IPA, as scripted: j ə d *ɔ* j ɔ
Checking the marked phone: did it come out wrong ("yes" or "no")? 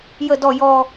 no